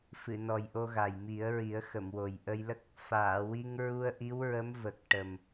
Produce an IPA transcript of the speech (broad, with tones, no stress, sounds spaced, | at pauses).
f ɨ˨˩˨ n ɔ˨˩ j ʔ o˧ ɣ a˨˩ j m i˨˩˦ ə̯ ɹ i˨˩˦ ə̯ x ə˨˩˨ m w o˨˩ j ʔ ə˧ j l ə˦˥ k̚ | f aː˨˩˨ w i˧ ŋ ɹ u˧ ə̯ ʔ i˧˥ w ɹ ə˧˥ m v ə˨˩ k̚ ʈ ə˨˩ m